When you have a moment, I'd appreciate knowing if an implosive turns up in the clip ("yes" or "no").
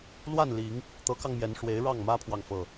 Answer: no